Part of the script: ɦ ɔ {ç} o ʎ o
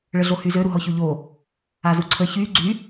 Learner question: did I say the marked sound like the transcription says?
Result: yes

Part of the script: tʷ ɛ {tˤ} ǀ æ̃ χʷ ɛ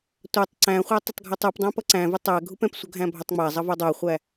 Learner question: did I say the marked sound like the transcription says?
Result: yes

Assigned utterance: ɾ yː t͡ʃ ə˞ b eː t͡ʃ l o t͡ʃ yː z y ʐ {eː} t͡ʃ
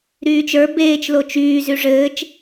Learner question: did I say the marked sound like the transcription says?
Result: no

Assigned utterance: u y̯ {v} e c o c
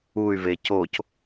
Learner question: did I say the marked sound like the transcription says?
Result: yes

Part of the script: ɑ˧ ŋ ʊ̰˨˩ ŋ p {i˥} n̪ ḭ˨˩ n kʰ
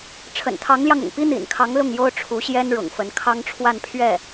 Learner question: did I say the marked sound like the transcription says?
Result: yes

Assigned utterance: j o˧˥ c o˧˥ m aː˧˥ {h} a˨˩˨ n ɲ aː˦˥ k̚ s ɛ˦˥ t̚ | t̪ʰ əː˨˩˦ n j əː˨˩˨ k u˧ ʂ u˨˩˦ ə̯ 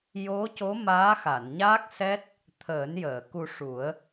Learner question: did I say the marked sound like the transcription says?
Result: no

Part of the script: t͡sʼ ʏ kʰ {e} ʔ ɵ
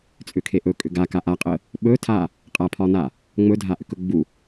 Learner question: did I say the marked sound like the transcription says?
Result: yes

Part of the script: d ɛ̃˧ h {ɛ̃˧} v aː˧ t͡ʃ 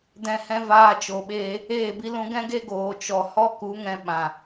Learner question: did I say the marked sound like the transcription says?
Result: no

